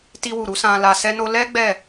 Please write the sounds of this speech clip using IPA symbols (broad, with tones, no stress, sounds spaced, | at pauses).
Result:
t i˧ w u˨ ɾ u˨˦ s ã˧ l a˧ s ɛ˧ n o˧ l ɛ˦ ɡ͡b ɛ˦˨